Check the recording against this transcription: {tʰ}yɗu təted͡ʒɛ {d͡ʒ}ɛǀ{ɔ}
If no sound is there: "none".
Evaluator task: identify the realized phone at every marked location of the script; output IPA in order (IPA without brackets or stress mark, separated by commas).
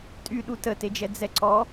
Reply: tʼ, d͡z, ɔ